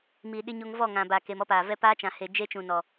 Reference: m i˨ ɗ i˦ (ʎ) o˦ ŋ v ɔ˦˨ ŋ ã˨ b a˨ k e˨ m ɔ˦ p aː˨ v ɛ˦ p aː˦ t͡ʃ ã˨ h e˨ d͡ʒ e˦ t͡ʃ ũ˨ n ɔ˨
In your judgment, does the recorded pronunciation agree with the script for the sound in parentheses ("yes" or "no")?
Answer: no